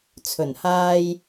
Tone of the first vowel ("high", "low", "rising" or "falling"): low